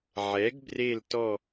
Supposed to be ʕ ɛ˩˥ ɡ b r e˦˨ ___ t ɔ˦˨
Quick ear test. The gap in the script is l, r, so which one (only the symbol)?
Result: l